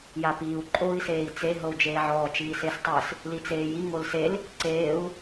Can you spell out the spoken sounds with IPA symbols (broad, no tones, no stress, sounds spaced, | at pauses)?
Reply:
j a p iː u̯ ǃʼ o i̯ s eː i̯ t͡s e ɦ ɤ u̯ d͡ʒ eː ʕ ɔː t͡ʃ iː s e s tˤ ɯ s | l i t͡s eː j i ŋ o l s e l | ǀ eː u̯